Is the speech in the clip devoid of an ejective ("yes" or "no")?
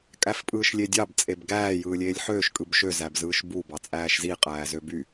no